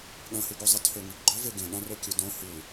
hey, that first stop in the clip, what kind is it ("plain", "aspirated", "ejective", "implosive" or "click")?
implosive